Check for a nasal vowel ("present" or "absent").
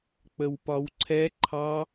absent